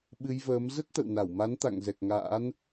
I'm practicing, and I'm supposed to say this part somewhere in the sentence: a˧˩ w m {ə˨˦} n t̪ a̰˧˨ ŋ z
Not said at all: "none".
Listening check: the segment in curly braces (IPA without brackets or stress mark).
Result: a˨˦